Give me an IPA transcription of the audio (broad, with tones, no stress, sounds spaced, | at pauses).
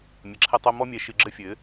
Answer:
mʲ ɐ˨ ǁʰ ɛ˦ tˤ o˦ m ɔ˦ mʲ ɛ˨˦ ʃ ɨ˨ ɡ͡ǁ ɘ˦ fʲ ɘ˨˦